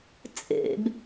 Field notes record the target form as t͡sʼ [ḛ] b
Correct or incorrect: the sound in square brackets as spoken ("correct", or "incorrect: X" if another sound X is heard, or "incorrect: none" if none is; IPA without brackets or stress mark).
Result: correct